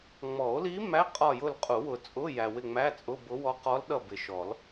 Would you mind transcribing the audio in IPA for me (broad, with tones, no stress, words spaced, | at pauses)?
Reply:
ŋ͡mɔ˨˩˦o̯li˧˥ mæ˧˥˧qʼɒ˦˨jʊ˦˨l qʼu˨˩˦wʊ˨t͡sʼʊ˧˥˧ jæ˨wɪ˦˨ŋ͡mæ˧˥˧t͡sʼʊ˧˥˧ bʊ˧˥wɔ˧˥ qɔ˧˥lɗʌ˦˨ bɪ˨ʃɔ˨˩˦l